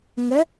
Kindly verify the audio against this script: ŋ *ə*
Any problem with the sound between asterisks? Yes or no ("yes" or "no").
no